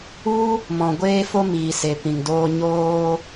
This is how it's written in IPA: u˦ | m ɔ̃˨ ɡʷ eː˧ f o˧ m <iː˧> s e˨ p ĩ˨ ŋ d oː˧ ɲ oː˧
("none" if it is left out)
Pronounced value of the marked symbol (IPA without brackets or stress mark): iː˨